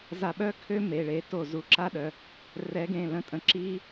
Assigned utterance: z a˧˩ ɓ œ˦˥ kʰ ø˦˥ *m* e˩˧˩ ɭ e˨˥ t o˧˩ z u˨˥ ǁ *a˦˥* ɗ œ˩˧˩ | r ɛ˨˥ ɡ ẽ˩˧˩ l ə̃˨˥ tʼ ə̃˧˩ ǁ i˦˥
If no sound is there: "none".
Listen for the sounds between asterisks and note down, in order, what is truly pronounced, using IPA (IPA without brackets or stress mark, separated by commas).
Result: m, a˦˥